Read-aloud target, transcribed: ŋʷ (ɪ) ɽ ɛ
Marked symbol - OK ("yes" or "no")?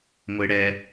yes